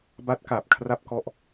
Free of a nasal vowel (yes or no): yes